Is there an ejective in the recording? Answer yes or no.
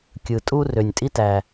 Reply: yes